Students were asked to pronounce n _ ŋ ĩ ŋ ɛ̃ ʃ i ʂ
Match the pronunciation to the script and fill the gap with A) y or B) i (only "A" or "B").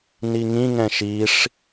B